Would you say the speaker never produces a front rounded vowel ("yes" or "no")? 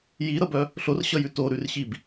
no